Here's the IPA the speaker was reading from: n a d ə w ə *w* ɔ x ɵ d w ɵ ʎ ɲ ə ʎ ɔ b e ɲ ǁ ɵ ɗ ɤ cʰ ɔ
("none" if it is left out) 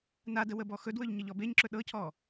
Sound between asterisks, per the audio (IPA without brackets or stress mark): b